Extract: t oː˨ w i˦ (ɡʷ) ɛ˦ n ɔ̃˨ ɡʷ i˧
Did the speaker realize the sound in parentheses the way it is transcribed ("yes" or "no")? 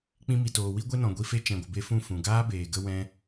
yes